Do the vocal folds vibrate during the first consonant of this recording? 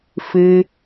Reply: no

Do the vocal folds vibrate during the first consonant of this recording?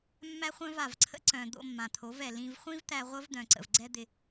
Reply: yes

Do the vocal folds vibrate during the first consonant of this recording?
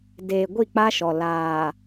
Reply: yes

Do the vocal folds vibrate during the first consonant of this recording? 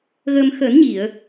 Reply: yes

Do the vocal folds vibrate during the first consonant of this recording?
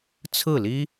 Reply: no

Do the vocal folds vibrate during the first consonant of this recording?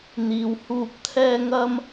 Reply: yes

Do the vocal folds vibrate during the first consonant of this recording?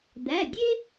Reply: yes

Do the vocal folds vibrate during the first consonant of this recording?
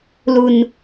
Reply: yes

